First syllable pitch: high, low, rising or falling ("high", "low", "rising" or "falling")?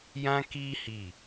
high